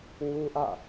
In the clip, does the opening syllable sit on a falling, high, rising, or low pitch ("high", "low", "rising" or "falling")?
high